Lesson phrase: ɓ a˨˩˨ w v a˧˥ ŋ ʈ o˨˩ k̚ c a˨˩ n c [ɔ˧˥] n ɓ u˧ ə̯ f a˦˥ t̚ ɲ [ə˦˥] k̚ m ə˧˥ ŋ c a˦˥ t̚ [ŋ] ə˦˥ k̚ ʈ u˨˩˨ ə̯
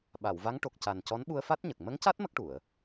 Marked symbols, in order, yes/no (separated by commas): yes, no, no